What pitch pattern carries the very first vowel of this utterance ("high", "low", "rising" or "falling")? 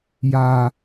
low